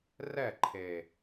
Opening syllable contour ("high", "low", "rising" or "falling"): falling